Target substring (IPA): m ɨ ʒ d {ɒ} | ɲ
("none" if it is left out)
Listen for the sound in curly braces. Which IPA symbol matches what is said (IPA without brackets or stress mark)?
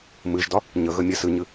ɒ